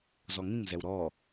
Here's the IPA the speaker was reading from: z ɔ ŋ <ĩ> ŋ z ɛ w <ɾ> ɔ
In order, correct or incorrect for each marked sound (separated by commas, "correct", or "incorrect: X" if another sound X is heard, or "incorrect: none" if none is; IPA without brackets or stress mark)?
correct, correct